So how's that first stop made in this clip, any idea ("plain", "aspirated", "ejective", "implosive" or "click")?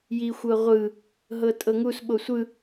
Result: ejective